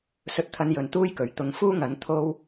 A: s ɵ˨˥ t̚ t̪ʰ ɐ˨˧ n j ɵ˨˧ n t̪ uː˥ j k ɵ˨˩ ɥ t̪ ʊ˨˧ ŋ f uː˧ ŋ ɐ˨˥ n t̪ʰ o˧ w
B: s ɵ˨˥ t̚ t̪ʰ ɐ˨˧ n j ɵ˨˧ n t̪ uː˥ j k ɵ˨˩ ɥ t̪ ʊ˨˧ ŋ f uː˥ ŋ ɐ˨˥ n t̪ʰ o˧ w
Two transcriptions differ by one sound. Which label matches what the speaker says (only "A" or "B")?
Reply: B